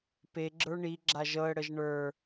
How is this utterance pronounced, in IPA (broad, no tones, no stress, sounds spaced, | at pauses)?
p e ɡ͡ǁ ə˞ ɳ i ɡ͡ǁ a ʒ ɤ ə̯ ɽ ə ʒ ɳ ə˞